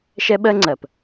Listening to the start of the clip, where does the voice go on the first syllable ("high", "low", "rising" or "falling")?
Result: high